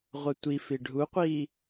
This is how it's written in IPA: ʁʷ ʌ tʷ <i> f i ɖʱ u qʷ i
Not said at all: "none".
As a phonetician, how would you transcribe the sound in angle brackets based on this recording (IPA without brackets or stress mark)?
i